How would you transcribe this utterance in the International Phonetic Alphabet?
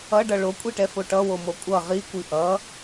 ʌ ɖ ʌ ɭ o kʷʼ i ʈ ɛ f o ʈ ʌ w o m o kʷʼ ʌ ʁ i kʷ i ʔ ʌ

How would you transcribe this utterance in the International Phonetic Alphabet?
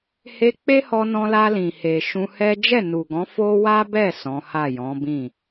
h e˧ k͡p e˦ h ɔ˧ n ɔ̃˧ l a˧ l ĩ˨ h e˨ ʃ ũ˧ h ɛ˦ d͡ʒ ɛ˦˨ n u˨ ɡ ɔ̃˨˦ f o˦ w a˦ b ɛ˦˨ s ɔ̃˨˦ h a˦˨ j ɔ̃˨˦ b ĩ˦˨

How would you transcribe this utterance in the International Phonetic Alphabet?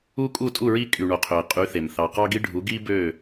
u˦ kʼ u˦˨ tʼ u˦˨ ɹ i˦ kʼ y˨ ɳ o˨ qʰ ø˨ ɪ̯ qʼ y˨˦ θ e˨ m θ ɑ˨ q ɑ˦ ɡ i˦ ɖʱ u˨˦ ɡ i˦ b ø˦˨

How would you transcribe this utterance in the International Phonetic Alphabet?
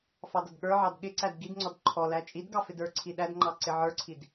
f ɑ d ʌ d ɠ ə˞ ʕ ɑ d ɠ ɪ ǀ æ d ɡ i d ŋ͡ǀ ɔ d ǃʰ ɔ l æ t͡ʃʼ i d ɡ ɑ f ɪ d ə˞ ǀʰ i ɗ æ d ŋ͡ǃ ɑ ǀ ɪ ʕ ə˞ ǀʰ i d

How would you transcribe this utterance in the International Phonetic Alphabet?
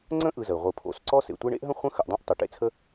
ŋ͡ǀ ə̃˥ ʔ ɯ˨ z ə˩ i̯ ʁʷ ɯ˨ pʰ o̰˨ s ǀ ɔ˥ s ḛ˨ tʷ e˦ ɳ ḛ˥ ʔ ɦ ə̃˥ χʷ ə̃˦ x ə˨ ʔ dˤ õ˦ ʔ tˤ ʉ˩ ʈ ḛ˦ t͡sʰ ə˦

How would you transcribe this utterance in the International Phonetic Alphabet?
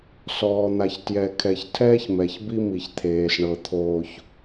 s ɔː˨ n̪ a˨ ç t j ɛ˨ kʰ ɛ˨ ç tʰ ɛː˦ ç m ɛ˨ ç b i˦ m i˨ ç t̪ʰ eː˨ s ɳ ɤ˨ t̪ʰ oː˦ ç

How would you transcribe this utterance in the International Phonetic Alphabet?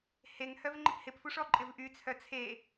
h e ŋ h œ v ŋ͡ǃ ɪ p h ɪ p f u ʂ ɔ ǃʼ ɪ v ʔ y t͡sʰ œ t͡sʰ e

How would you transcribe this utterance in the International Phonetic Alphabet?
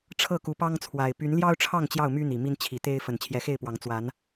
ʈ͡ʂʰ ɤ˥˨ k u˨˦ p ɑ˦ ŋ t͡sʰ w a˨˩ ɪ̯ p y˨˦ n l j ɑ˦ ʊ̯ ʈ͡ʂʰ ɑ˥˨ ŋ t͡ɕ j ɑ˥˨ ʊ̯ m y˦ n̪ i˨˩ m i˦ n t͡ɕʰ i˨˦ t̪ e˦ ɪ̯ f ə˨˩ n t͡ɕʰ j ɛ˨˦ x e˥˨ ɪ̯ p w ɑ˨˦ ŋ t͡s w a˨˦ n

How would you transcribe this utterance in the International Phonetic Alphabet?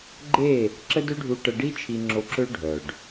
ɡ͡ǃ e˦˨ | ǁ ə˦ d ø˦ ɖʱ u˧ ʈ ə˧ ɖ i˦ t͡ʃʰ i˧ ŋ͡ǁ o˧ ǁ ø˦ ɖʱ œ˨ ɖ

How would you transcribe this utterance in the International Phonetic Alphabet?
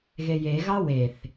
ɣ e j e ɣ ɑ w e θ

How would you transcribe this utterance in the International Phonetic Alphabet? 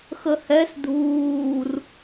x ə h ɛ s dʱ uː r

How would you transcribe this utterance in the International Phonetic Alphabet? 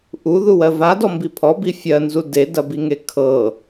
ʔ u ð u w ɜ v a d ɔ m b i pʰ ɔ b i fʲ ɜ n z u d e d ɐ b i ŋ e kʰ ɤ

